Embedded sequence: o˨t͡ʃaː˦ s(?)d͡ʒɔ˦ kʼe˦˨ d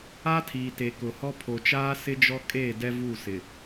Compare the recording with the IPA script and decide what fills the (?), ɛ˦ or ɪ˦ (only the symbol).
ɪ˦